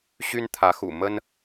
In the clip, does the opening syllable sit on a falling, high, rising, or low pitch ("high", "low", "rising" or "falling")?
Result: high